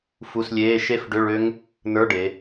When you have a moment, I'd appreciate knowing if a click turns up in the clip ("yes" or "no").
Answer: no